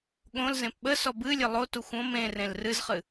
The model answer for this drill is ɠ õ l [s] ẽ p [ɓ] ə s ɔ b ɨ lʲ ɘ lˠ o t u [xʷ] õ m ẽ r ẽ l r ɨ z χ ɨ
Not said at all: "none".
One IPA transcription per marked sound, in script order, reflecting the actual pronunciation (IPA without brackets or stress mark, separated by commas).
z, ɓ, xʷ